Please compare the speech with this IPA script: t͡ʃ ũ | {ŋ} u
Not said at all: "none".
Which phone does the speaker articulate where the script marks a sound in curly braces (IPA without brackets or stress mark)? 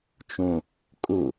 kʼ